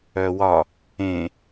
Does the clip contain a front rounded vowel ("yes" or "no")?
yes